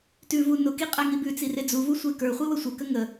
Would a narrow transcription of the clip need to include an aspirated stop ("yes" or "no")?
no